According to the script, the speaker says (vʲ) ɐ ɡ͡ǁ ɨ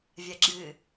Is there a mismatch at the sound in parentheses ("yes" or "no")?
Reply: no